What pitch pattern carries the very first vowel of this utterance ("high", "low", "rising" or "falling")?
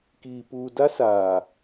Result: low